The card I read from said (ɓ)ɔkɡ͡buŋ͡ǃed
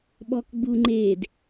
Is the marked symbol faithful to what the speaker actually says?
yes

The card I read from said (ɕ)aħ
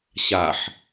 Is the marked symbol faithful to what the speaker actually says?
yes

